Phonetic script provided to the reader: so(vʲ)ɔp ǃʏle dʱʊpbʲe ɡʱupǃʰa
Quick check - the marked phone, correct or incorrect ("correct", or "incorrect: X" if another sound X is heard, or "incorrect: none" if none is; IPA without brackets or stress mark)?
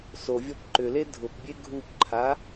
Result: correct